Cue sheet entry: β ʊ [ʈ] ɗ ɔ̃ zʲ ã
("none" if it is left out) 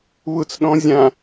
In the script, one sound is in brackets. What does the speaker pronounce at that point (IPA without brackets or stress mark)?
t͡s